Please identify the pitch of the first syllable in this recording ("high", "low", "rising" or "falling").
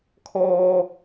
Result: high